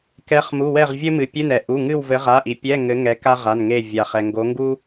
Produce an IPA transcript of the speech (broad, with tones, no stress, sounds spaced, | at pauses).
k ɛ˨˦ χ m u˩˧˩ w ɛ˦˨ ʁ vʲ ɘ˥ m ɨ˩ pʲ ɨ˧˥˧ n ɛ˩ ʔ u˩˧˩ ŋ ɨ˦˨ w v ɘ˨˦ ʁ a˩˧˩ ʔ i˩ pʲ ɛ˧˥˧ ŋ ɘ˨˦ ŋ ɛ˨˦ k a˥ ʁ a˩˧˩ n ŋ e˦˨ vʲ a˩ χ ɛ˩ ŋ ɡ o˨˦ ŋ ɡ u˥